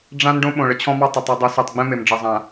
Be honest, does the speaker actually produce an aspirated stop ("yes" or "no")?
yes